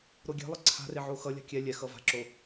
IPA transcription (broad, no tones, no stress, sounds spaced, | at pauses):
ɾ o ɡʲ e̤ lˠ ʌ ǀʰ a̤ r e ʕ o x ʌ lʲ a̤ kʲ ɛ lʲ ɛ x ʌ v a̤ ǁ o